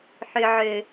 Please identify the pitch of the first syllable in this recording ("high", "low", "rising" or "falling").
low